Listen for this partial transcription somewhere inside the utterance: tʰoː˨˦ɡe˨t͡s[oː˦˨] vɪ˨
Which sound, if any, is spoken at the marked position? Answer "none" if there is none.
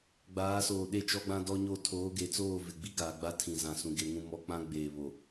oː˦˨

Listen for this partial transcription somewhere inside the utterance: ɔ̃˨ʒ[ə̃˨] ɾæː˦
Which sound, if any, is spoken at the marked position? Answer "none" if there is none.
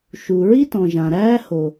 ã˨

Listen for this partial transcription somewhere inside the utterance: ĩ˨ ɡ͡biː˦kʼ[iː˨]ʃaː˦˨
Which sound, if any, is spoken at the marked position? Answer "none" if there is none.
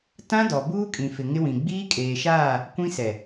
eː˨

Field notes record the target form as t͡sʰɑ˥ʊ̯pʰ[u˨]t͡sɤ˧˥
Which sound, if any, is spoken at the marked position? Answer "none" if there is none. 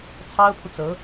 u˨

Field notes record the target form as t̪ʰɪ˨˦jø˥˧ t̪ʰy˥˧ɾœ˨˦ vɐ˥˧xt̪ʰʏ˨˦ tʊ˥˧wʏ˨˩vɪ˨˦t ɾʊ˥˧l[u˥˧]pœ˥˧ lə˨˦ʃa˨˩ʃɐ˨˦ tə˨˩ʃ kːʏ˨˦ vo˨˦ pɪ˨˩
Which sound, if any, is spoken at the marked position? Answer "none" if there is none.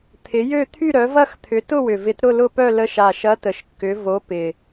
ʊ˥˧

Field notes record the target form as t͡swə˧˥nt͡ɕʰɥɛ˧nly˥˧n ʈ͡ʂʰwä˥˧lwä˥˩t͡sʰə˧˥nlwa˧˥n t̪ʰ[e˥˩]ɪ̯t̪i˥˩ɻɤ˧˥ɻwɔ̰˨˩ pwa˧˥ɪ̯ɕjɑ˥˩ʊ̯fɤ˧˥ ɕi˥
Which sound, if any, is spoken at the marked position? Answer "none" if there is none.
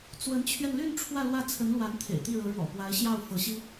ḛ˨˩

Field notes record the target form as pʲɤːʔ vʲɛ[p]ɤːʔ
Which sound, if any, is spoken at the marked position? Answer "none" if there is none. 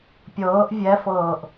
f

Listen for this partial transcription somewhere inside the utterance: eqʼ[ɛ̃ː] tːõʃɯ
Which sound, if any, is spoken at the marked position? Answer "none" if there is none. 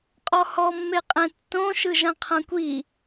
ɛ̃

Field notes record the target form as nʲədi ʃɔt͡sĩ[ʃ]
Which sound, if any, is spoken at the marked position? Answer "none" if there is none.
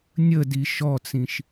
ʃ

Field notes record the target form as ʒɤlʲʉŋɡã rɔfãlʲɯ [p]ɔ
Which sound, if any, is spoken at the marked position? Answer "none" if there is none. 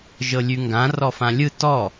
t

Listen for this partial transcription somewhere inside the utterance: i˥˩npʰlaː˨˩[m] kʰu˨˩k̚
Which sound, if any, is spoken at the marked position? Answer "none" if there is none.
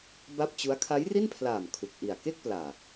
m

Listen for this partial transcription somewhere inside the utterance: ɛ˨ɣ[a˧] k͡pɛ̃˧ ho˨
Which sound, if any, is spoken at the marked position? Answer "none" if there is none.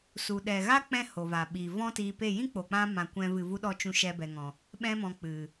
a˦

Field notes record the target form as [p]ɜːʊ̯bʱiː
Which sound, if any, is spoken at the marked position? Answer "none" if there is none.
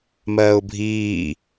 m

